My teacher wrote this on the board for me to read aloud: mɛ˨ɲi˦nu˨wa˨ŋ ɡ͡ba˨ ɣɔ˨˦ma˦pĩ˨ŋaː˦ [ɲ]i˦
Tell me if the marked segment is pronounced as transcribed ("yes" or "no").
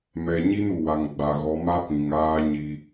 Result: yes